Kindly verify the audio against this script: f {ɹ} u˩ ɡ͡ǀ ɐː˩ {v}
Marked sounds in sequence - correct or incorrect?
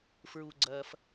correct, incorrect: f

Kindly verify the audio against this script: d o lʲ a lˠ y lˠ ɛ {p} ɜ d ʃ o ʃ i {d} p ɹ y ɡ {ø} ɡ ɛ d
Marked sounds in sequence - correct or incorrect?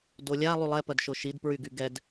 correct, correct, incorrect: y

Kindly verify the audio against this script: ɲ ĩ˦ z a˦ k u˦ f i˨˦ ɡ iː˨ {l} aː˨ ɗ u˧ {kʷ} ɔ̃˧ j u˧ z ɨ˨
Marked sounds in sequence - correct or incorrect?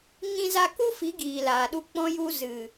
correct, incorrect: k͡p

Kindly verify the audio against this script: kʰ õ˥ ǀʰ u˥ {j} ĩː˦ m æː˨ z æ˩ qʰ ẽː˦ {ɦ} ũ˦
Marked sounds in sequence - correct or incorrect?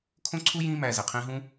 correct, correct

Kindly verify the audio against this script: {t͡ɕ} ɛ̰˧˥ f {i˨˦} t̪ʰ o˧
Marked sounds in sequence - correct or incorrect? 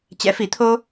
correct, correct

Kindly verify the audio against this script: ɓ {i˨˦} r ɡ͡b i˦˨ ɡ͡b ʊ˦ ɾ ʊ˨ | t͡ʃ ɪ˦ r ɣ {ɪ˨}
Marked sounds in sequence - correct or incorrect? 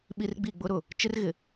incorrect: i˦, correct

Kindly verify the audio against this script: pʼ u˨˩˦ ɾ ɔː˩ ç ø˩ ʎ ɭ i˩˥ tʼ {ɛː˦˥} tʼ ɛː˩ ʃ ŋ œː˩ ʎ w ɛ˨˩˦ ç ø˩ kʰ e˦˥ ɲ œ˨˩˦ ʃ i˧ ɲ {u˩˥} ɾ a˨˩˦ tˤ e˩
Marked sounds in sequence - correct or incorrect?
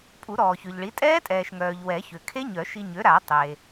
correct, incorrect: ø˩˥

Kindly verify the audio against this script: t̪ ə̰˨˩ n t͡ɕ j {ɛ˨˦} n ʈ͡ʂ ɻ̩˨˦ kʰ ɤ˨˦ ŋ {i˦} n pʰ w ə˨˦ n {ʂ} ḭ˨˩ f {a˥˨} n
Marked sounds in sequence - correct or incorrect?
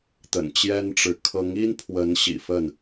incorrect: ɛ˦, correct, incorrect: ɕ, incorrect: ə˥˨

